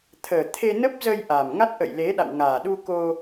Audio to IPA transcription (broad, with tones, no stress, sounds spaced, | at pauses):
t̪ʰ əː˨˩ t̪ʰ e˧ n ə˦˥ p̚ z ə˧ j ʔ a˨˩ m ŋ a˦˥ t̚ ʔ ə̰˧˨ j l e˨˦ ɗ a̰˧˨ w ŋ aː˨˩ ɗ u˧ k o˧